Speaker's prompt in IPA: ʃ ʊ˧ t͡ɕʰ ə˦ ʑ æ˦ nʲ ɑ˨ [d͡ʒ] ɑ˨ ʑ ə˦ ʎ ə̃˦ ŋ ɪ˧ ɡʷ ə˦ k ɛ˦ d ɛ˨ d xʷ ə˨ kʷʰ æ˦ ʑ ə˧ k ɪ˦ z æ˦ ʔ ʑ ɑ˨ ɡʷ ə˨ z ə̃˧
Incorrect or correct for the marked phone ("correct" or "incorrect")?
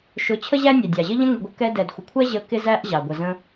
incorrect